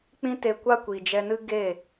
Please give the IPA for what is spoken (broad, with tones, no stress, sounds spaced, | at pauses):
k͡p ĩ˦ t e˧ kʷ a˦ kʷ i˨ d͡ʒ ɛ˧ n ɨ˦ ɡ e˦˨